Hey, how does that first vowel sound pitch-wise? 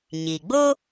low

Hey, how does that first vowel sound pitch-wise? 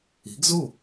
rising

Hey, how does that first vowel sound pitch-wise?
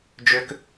high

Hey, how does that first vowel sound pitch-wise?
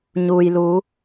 low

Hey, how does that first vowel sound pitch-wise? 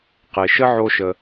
low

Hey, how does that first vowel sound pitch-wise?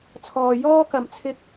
low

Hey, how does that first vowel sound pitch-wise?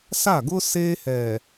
falling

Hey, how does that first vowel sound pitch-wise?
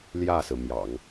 falling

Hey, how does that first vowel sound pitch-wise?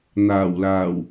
low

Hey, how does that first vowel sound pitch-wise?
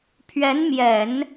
rising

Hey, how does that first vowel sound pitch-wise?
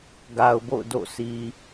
low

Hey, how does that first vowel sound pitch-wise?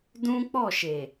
high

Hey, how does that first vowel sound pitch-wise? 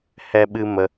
high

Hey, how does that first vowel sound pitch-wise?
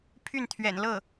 falling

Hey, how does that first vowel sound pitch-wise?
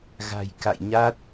low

